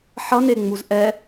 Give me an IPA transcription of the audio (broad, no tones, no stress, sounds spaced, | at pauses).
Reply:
ħ ʌ n e ŋ͡m u z ʔ ɛ